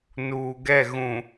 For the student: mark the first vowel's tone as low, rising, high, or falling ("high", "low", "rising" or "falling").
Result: low